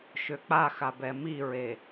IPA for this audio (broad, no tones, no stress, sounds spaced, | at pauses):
ʃ ø k͡p a x a b ɛ m i ɹ e